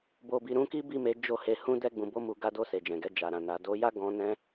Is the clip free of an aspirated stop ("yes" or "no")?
yes